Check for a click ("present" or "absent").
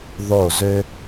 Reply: absent